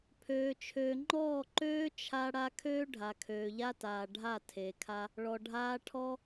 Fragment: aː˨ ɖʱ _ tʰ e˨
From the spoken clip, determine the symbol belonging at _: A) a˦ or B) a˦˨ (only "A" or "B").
B